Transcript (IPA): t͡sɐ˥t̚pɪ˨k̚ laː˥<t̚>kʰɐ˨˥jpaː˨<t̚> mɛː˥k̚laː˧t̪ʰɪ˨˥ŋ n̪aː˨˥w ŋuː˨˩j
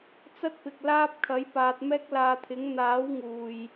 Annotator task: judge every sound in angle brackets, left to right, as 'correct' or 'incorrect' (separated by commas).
incorrect, correct